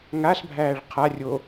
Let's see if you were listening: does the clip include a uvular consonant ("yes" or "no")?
yes